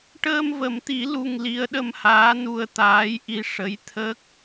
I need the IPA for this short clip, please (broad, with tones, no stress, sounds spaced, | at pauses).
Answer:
ʈ əː˧ m v ə˨˩˦ m t̪ i˨˩˦ l u˧ ŋ l i˧˥ ə̯ ɗ ə˧ m h aː˧˥ n u˧ ə̯ t̪ aː˧˥ j ʔ i˧ ʂ ə˧˥ j t̪ʰ ə˦˥ k̚